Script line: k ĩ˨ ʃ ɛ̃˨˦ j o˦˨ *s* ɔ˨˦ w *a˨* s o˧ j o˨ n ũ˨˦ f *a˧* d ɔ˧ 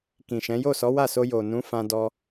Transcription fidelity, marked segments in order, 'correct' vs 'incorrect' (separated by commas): correct, incorrect, incorrect